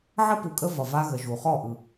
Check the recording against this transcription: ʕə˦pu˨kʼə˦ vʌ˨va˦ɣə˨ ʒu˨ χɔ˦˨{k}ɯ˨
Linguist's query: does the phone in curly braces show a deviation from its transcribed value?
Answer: yes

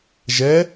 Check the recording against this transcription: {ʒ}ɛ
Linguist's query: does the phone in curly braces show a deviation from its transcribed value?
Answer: no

